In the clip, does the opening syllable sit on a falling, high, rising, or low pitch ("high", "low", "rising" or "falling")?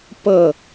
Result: falling